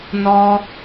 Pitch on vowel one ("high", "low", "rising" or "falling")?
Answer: high